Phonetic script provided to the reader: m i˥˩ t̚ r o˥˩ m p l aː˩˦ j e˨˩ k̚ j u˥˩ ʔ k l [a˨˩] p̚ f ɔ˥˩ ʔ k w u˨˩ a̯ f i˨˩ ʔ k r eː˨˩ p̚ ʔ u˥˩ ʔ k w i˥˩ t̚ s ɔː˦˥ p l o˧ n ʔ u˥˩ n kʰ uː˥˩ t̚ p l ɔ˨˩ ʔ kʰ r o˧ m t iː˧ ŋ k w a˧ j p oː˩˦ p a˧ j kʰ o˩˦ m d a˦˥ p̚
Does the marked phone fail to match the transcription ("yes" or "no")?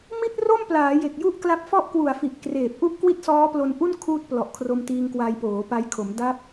yes